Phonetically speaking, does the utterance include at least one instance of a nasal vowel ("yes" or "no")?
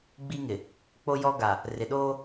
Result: no